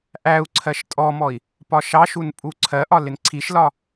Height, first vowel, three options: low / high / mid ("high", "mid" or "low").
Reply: low